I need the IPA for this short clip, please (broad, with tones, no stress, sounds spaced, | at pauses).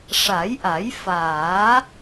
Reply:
ʂ a˨˩˦ j ʔ a˨˩˦ j f aː˨˩˦